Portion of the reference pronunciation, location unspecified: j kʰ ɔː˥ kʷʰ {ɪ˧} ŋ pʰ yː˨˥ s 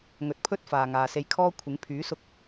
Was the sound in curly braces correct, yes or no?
no